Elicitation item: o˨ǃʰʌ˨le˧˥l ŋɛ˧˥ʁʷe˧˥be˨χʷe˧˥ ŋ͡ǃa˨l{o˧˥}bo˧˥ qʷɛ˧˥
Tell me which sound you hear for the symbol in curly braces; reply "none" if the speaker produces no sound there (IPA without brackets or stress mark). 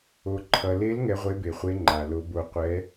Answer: o˧˥